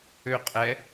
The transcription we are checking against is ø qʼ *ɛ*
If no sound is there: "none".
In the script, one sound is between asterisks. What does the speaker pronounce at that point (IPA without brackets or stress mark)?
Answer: ɛ